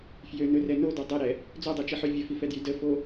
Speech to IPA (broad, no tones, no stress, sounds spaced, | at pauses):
f j ø n ɵ r ɛ n o d o dˤ ɛ ɾ ɛ | d͡z o dˤ ɛ t͡ʃ i ħ ø vʲ ə f i f ɛ d j y d ə f o